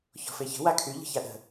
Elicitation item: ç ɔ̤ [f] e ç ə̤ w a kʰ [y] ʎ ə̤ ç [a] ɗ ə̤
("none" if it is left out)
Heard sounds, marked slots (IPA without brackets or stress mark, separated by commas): f, y, a